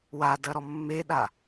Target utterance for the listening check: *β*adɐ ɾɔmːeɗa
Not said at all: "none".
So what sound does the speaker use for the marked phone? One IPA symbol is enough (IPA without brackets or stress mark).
w